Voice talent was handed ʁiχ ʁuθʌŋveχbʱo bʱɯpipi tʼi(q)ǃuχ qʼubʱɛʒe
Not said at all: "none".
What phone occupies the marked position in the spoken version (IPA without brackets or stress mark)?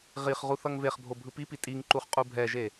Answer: ŋ